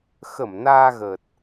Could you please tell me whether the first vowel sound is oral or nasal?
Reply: oral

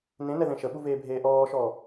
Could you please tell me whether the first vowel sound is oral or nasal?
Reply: nasal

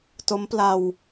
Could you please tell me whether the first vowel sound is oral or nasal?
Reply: oral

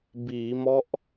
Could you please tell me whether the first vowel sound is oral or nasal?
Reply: oral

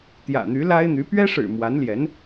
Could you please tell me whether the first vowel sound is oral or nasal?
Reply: oral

